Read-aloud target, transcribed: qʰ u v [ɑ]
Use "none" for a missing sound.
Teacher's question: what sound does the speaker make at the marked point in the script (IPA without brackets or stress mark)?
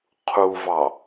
ɑ